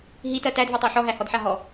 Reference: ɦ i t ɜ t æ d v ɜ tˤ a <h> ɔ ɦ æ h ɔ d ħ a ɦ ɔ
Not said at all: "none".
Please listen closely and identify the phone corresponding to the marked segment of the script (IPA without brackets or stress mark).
ħ